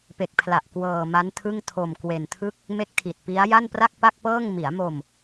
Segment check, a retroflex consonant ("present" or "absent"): absent